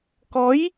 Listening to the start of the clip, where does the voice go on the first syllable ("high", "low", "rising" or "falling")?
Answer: rising